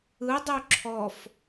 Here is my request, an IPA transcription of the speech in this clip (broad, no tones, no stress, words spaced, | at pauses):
ɯdˤu ǁʰɔf